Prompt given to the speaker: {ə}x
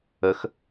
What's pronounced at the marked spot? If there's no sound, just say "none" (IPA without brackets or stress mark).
ə